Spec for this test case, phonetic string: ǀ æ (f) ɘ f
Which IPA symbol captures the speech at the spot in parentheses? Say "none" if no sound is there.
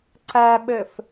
ɓ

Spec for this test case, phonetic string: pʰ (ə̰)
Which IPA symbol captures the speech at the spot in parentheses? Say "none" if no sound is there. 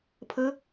ə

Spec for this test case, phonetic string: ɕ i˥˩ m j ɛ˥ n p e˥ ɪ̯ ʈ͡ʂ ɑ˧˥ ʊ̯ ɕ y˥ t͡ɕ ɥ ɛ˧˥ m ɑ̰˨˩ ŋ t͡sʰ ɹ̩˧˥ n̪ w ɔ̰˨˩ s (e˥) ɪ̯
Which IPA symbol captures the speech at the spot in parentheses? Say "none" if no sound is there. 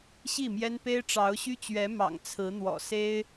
e˥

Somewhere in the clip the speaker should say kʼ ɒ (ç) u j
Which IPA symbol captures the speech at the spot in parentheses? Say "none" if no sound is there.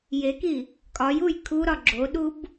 j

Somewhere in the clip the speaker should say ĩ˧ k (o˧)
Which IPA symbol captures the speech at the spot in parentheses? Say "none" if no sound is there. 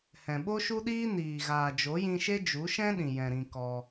ɔ˧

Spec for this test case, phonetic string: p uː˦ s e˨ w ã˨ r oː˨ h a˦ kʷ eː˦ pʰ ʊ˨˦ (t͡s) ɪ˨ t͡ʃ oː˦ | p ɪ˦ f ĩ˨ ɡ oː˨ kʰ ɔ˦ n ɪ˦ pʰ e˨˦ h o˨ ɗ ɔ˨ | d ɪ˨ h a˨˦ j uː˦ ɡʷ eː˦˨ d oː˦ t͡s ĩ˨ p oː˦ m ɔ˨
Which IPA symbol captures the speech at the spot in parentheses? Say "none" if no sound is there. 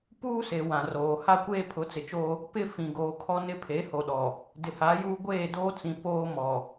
t͡s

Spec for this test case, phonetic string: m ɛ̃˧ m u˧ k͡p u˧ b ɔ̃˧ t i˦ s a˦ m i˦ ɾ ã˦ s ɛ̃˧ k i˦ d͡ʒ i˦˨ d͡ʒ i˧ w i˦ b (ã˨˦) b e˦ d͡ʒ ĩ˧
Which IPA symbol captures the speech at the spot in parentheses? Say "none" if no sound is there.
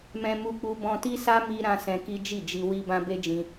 ã˦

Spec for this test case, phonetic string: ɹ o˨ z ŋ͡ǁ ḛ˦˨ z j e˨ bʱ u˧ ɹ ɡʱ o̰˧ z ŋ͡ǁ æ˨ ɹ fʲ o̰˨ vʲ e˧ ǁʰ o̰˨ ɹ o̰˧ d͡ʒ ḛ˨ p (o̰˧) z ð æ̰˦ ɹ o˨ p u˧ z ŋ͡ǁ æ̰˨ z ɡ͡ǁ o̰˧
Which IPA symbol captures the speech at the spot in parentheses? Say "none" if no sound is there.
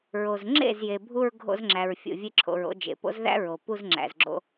o̰˦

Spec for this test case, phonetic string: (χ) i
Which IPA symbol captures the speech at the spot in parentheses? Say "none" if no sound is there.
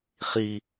χ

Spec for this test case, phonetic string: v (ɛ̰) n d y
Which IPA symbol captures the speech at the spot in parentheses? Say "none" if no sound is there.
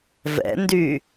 ɛ̰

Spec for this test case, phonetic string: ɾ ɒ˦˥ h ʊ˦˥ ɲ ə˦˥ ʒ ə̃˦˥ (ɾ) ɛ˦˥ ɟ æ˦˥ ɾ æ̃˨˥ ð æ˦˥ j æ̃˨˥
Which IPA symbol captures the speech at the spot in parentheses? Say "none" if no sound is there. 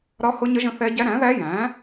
θ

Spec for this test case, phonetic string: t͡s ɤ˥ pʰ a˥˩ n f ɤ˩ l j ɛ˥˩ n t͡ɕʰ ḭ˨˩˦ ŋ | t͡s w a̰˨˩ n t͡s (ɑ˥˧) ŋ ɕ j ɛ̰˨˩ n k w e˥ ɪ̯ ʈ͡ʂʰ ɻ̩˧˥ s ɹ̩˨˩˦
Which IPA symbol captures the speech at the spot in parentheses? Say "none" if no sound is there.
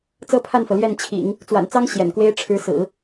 ɑ˥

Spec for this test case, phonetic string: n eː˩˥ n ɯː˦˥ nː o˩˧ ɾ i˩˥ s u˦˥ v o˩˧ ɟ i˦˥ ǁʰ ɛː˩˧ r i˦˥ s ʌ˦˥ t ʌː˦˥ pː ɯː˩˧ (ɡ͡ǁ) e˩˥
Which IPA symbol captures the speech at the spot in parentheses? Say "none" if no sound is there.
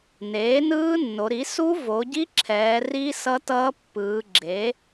ɡ͡ǁ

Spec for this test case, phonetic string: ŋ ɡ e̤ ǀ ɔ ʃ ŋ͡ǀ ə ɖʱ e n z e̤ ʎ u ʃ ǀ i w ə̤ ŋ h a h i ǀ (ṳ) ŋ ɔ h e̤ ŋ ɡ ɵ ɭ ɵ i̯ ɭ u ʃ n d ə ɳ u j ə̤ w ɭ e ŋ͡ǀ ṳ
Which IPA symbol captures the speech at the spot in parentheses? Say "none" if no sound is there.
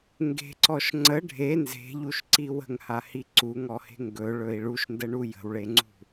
u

